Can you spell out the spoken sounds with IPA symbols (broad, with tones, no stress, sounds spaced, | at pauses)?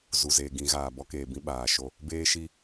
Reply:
z u˨ z eː˨ ɡ ĩ˨˦ ɣ aː˨ b ɔ˦ k eː˨ b ĩ˦ ɓ aː˨ ʃ o˦ | b eː˦ ʃ i˦